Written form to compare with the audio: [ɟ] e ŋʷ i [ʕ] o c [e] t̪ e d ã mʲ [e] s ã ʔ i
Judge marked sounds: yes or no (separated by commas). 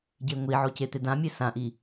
yes, yes, yes, yes